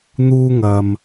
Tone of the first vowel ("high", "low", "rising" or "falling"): high